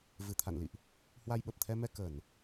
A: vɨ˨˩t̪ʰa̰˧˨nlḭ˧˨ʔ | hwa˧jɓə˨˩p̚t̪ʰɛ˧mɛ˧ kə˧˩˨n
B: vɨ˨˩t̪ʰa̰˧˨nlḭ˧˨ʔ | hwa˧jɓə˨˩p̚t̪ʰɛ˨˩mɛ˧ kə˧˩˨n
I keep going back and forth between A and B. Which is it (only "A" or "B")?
A